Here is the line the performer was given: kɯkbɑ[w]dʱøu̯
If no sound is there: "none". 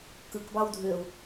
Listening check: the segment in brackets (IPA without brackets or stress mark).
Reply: w